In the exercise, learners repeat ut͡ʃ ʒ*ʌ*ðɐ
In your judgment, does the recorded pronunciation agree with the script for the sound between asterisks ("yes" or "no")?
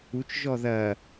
no